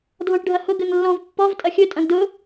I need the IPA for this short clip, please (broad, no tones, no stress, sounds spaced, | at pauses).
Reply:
dʱ ɔ̃ ʈ ɖʱ ɐ h ʊ ɡ ɘ ŋ lː ɔ̃ v pː ɔ v tʼ ɐ xʲ ɵ tʼ ɐ̃ ɡ d ʊ